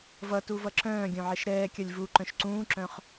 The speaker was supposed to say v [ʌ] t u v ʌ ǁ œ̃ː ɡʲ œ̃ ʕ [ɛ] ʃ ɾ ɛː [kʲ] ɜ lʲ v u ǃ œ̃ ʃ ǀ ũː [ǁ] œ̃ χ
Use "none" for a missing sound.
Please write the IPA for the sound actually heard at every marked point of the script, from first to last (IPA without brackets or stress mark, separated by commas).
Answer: ʌ, ɛ, kʲ, ǁ